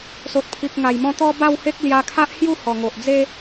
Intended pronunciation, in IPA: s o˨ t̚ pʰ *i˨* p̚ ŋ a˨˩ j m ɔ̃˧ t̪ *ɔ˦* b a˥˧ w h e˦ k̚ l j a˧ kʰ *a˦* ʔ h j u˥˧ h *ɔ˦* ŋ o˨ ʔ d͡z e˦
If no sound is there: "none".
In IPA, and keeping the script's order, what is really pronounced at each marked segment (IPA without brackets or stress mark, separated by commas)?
i˨, ɔ˧, a˦, ɔ˨˩